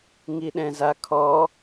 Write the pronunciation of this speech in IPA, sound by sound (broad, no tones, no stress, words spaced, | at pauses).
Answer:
ŋiɗɛ̃zakʰɔ